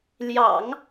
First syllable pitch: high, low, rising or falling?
low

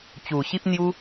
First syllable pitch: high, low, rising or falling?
low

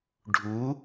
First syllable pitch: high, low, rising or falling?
rising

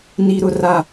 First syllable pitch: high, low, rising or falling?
low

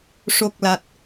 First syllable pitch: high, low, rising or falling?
low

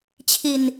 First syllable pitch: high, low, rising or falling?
low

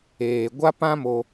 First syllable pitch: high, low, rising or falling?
low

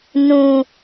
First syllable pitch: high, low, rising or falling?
low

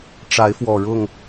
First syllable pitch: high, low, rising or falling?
rising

